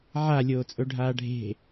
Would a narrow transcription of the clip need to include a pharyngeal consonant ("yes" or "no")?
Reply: yes